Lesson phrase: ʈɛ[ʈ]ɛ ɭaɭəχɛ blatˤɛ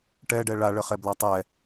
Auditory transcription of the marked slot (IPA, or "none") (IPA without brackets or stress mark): ɖ